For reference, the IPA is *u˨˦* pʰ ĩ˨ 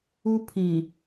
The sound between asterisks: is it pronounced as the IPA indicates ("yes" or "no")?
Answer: no